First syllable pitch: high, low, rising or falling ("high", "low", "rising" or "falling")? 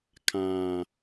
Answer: low